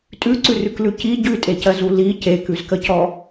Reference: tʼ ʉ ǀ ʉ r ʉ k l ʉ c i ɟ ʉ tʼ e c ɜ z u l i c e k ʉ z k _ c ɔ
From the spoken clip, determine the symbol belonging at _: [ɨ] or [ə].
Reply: ə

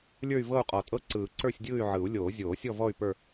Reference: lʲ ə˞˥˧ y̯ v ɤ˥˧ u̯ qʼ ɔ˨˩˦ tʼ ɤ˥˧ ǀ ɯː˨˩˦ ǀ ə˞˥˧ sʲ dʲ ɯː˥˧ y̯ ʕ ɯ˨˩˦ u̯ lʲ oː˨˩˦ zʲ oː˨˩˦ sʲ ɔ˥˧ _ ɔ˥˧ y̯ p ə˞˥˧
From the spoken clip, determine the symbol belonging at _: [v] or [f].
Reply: v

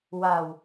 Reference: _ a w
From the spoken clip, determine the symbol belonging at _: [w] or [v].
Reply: w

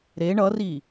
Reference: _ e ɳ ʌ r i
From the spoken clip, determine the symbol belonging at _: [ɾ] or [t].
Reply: ɾ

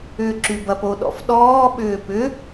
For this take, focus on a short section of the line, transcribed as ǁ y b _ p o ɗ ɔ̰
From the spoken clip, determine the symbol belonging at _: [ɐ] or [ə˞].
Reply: ɐ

